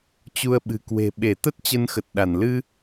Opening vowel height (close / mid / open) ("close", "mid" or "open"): close